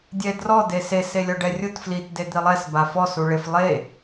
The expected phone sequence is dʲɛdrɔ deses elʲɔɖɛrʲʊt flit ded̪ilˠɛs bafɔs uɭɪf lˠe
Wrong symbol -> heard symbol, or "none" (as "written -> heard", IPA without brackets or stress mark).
none